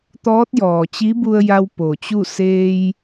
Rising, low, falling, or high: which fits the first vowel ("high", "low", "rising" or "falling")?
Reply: rising